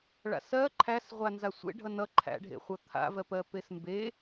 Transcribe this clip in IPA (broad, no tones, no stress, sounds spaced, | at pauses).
ɭ a̰ s ɜ ǃʰ æ s ʁʷ a n z a sʷ ḛ ɖʱ ʌ n ʌ ǃʰ æ̰ ɖʱ ḛ χʷ ʌ t̪ʰ a̰ v ɜ p ɜ p e s m b e